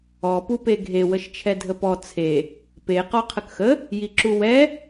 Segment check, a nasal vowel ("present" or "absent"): absent